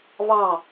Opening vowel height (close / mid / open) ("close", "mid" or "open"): open